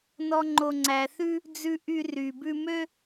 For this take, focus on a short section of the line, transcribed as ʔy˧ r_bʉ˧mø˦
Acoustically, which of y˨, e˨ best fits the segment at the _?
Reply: y˨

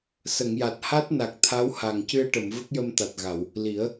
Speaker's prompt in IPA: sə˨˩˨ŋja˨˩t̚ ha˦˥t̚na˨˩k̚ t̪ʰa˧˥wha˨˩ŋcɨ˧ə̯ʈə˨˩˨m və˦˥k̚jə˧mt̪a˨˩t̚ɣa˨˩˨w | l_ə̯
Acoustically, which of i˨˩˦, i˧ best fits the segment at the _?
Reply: i˨˩˦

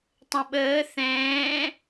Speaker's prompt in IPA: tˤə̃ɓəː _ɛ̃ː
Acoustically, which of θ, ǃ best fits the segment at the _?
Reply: θ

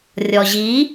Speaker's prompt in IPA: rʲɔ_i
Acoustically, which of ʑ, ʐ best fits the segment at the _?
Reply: ʑ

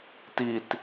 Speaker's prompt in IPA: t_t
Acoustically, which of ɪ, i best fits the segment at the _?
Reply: i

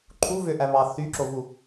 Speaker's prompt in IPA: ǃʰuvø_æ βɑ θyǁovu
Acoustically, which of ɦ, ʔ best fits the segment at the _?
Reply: ʔ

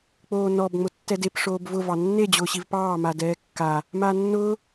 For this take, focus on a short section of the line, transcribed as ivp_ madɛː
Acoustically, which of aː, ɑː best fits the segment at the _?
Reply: ɑː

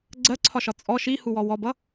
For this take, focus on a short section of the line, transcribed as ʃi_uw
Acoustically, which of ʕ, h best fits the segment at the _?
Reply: h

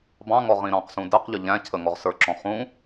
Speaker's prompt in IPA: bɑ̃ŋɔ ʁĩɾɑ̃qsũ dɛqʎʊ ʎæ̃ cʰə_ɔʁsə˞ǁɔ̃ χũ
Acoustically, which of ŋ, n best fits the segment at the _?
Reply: ŋ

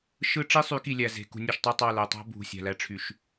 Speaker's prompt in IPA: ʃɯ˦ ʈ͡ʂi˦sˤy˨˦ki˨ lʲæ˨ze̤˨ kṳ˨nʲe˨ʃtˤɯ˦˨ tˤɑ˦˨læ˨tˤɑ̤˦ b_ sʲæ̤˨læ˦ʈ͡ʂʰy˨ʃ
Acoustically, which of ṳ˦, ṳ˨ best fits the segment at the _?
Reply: ṳ˨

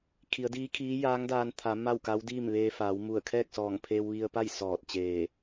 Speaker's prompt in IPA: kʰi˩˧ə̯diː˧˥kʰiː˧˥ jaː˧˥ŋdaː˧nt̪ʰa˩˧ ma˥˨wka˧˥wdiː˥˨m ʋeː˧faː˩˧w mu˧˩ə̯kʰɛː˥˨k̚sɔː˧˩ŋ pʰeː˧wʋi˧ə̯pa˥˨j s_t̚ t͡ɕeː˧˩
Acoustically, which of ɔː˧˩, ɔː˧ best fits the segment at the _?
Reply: ɔː˧˩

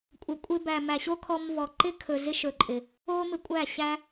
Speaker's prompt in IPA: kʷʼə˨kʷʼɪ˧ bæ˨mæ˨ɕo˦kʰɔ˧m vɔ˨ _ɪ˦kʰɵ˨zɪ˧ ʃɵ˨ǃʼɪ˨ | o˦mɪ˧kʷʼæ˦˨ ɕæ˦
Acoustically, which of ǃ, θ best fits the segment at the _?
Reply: ǃ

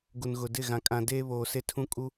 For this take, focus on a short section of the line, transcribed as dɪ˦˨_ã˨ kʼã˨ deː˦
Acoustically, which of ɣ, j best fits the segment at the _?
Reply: ɣ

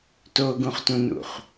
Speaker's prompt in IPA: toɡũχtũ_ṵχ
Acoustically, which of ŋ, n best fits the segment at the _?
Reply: n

